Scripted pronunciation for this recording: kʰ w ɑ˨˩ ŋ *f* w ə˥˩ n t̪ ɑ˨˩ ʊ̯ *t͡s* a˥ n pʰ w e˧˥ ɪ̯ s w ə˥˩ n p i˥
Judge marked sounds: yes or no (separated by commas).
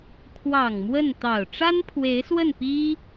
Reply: no, no